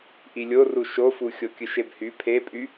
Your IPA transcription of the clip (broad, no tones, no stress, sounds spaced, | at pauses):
ʔ i lʲ o r u ʃ o f u xʲ o kʲ ɯ ʃ e b h y pʰ e pʼ y